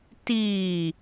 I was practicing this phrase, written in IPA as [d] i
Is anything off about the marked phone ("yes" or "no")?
yes